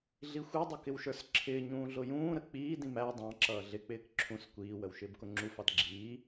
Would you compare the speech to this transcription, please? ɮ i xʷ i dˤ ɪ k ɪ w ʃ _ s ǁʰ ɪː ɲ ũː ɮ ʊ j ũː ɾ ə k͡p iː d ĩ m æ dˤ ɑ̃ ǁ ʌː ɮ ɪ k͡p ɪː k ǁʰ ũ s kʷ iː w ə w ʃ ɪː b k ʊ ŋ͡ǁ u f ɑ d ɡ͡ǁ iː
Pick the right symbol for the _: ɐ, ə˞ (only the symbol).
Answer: ə˞